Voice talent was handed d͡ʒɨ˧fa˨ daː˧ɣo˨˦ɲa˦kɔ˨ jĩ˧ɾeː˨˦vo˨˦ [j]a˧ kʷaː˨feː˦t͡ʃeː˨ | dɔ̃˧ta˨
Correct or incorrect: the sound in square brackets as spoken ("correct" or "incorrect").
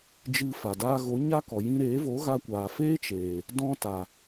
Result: incorrect